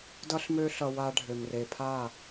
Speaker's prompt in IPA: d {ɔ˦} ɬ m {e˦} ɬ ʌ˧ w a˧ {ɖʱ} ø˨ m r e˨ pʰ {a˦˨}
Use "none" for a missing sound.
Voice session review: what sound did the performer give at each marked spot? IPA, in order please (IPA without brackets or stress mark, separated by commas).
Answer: ʌ˦, ø˦, ɖʱ, a˦˨